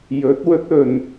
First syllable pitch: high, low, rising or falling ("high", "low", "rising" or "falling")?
rising